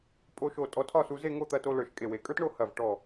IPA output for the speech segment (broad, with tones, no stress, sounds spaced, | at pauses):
pʼ o˧ ʃ o˧˩ tʼ ɔ˧ tʰ ɒ˥˧ s u˧ z e˥˧ ŋ o˥˧ t̪ ɐ˧ t o˧ l ə˞˧˩ ʃ kʼ e˧˩ w e˩˧ kʼ ə˞˥ t ɳ o˥˧ h ɐ˧˩ v ʈ ɔ˧˩